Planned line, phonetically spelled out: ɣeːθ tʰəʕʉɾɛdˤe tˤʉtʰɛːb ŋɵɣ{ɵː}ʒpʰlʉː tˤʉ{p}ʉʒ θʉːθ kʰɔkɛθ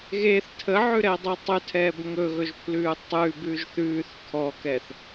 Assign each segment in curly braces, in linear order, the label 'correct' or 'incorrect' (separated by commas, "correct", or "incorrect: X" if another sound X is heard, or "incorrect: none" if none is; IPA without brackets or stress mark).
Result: incorrect: ɵ, incorrect: b